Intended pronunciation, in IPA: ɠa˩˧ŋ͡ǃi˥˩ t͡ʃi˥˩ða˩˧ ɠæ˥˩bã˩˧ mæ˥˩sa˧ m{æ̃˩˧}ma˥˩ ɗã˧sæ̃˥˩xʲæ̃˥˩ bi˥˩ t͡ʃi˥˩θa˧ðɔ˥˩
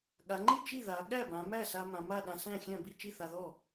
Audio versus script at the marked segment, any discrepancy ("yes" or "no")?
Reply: yes